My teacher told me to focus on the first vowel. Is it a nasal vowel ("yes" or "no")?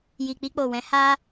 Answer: no